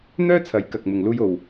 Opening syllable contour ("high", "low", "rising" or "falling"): high